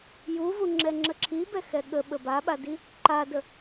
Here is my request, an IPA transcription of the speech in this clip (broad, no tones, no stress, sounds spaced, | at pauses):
j u v u ŋ͡ǁ ɛ ŋ͡ǁ ə ǁʰ i b ɛ x ɛ ɠ ə ɓ ə b a ɓ a d i | ǃ a d ə